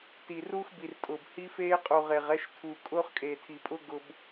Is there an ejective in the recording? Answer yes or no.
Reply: yes